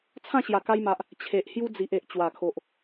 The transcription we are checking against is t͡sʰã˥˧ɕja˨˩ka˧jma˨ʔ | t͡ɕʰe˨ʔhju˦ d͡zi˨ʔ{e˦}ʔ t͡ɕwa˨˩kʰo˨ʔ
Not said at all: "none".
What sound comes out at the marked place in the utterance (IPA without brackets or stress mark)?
e˨